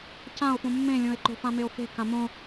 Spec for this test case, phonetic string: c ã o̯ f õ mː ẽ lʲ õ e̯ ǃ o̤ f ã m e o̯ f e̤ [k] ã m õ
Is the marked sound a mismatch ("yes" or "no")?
no